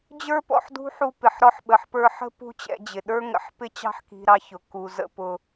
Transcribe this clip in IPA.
d͡ʑ ə˞˦ p ɔ̰˨ ħ d ṳ˦ ħ u˧ p ɪ˨ ħ ɾ ɔ˧ ħ ɓ ə˨ ħ p ə˞˧ ħ ə̤˦ p ṳ˦ t͡ɕ ɛ̰˧ d͡ʑ ɪ˨ ɗ ə˞˦ ŋ ə̰˧ ħ p ɪ˦ t͡ɕ ɑ̤˦ ħ k i̤˧ ɾ ɑ˧ ç ʊ˨ k u˨ z ə̰˧ p ʊ˦

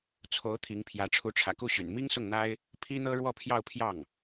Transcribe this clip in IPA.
t͡sʰ o˧˥ ʊ̯ t̪ʰ i˧˥ ŋ pʰ j ä˧˥ ʈ͡ʂʰ u˧˥ ʈ͡ʂʰ ä̰˨˩ k u˥˩ ɕ y̰˨˩ n m i˥ ŋ s ʊ˥˩ ŋ n̪ a˥ ɪ̯ | pʰ i˥ n̪ ɤ˥ ɻ w ɔ˥˧ pʰ j ɑ˥˧ ʊ̯ pʰ j ɑ˥˩ ŋ

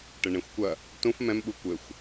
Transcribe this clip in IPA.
ʈ ɘ ɳ ẽ xʷ kʷ ɐ | t ũ f m ɛ̃ m ɓ u kʷ ɘ xʷ

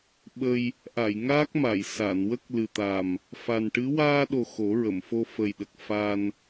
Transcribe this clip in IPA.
ɓ ə˧ j | ʔ a˨˩˨ j ŋ aː˦˥ k̚ m a˨˩˨ j s a˨˩˨ n w ə˦˥ k̚ l ɨ˨˩ t̪ a˨˩ m | f a˨˩ n ʈ ɨ˧˥ w aː˧ ɗ o˨˩ x o˨˩˦ ɹ ə˨˩˨ m f o˧ f ə˨˩ j ɗ ə˨˩ k̚ f a˧ n

